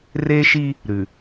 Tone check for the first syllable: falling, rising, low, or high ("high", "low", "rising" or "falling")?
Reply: high